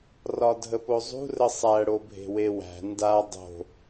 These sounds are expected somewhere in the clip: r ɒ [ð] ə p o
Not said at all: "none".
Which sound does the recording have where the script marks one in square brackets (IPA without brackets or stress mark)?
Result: dʱ